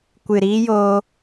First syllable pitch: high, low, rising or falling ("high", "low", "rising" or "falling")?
low